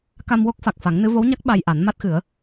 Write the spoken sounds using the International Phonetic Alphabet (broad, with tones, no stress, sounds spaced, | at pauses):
k a˧ m w o˦˥ k̚ f a˨˩ k̚ f a˨˩˦ ŋ n ɨ˧˥ v o˧˥ w ɲ a˦˥ k̚ ɓ a˧ j ʔ a˨˩˦ n m a˦˥ t̚ x ɨ˨˩˦ ə̯